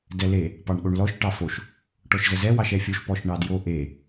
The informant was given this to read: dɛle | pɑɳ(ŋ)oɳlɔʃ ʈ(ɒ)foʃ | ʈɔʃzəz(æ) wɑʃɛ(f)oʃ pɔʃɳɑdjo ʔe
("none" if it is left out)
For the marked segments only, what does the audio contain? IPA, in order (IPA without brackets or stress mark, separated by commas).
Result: ɠ, ɑ, ɛ, fʲ